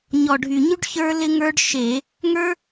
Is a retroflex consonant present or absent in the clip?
present